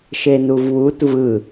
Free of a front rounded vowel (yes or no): yes